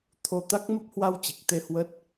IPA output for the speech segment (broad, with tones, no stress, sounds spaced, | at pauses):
t̪ʰ o˧ t̪ a˦˥ k̚ m ə˦˥ p̚ h w a˧ w t͡ɕ i˨˩ k̚ t̪ e˧ h w ə˦˥ t̚